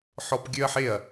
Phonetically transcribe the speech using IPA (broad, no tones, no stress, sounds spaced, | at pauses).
ħ ɔ p ɡʲ ø ɐ̯ ħ e ɐ̯